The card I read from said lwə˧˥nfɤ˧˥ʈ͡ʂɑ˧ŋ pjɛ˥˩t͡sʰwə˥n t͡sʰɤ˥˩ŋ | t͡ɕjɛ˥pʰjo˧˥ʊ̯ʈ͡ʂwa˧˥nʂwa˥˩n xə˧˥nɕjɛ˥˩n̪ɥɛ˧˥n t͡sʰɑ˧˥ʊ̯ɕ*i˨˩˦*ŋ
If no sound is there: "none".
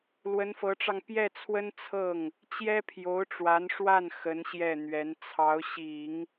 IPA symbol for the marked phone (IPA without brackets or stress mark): i˨˩˦